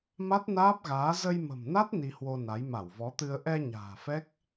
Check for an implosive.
absent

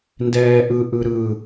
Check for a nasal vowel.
absent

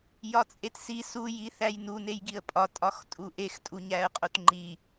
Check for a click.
present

